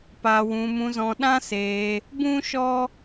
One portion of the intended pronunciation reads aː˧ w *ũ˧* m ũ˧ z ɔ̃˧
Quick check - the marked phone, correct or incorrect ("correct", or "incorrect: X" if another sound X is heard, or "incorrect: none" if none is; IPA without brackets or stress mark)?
correct